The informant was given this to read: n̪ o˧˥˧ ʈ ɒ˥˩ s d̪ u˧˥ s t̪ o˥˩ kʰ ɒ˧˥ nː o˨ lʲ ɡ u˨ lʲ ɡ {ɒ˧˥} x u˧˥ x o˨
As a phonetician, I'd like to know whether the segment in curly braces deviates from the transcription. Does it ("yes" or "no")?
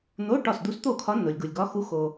no